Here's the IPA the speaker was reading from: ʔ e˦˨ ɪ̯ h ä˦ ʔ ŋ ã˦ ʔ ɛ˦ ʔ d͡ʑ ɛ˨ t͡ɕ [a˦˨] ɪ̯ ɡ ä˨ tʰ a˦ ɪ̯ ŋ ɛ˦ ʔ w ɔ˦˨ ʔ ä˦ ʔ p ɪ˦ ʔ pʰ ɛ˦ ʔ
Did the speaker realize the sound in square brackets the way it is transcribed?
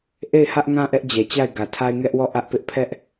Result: yes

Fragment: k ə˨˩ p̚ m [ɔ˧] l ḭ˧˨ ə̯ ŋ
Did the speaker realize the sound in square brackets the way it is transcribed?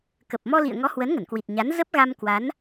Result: yes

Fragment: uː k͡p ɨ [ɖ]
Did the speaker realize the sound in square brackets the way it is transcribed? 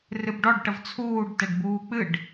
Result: yes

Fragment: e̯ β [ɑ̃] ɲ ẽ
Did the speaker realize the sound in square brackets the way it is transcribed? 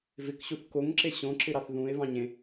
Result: yes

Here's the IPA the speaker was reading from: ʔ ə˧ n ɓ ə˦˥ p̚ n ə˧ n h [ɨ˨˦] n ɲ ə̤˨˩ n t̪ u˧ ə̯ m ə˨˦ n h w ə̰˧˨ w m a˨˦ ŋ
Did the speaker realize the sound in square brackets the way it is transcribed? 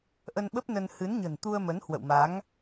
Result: yes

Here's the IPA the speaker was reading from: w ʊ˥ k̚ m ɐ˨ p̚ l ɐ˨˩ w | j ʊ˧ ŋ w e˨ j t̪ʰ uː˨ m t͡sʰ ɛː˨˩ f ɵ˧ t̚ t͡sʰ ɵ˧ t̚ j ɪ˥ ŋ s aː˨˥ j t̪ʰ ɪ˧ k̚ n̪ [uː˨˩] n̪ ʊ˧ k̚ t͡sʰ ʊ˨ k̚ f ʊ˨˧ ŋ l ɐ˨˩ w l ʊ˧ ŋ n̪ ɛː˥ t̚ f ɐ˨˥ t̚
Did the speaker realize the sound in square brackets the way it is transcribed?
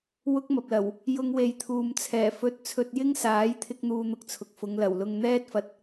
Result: no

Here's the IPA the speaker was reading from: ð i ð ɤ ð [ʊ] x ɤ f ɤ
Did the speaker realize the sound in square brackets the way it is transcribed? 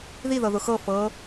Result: yes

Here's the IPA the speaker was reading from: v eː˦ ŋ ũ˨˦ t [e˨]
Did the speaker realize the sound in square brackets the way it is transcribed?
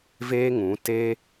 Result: no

